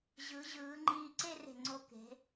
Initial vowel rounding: unrounded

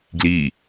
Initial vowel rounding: unrounded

